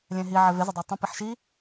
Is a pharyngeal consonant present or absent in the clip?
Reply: present